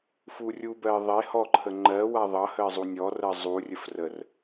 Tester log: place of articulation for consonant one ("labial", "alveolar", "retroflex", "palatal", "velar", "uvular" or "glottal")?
labial